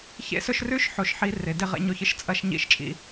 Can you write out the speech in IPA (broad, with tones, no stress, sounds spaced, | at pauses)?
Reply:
ç ḛ˦˥ s ɵ˦˥ ʃ r ʉ˦˥ ʃ ħ o˦˥ ʃ ħ i˦˥ r e˨˦ d e˦˥ ʁ ḛ˦˥ ɲ o˦˥ ç ɨ˦˥ ʃ t͡sʼ ɐ˦˥ ʃ ɲ ḭ˦˥ ʃ t͡ʃʼ ḭ˦˥